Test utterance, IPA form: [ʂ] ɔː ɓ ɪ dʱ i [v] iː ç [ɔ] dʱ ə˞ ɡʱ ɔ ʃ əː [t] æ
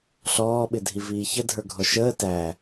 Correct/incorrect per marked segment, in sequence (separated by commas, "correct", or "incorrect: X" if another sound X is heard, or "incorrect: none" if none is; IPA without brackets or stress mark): incorrect: ɬ, correct, incorrect: ə, correct